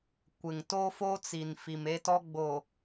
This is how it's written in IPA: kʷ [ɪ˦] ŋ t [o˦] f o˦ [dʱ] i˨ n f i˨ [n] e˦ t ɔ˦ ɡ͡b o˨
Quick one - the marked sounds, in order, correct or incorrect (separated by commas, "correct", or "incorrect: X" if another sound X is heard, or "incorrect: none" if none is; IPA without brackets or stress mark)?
incorrect: ɪ˨, correct, incorrect: t͡s, incorrect: m